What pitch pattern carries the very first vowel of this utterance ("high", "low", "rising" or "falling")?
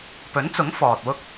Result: rising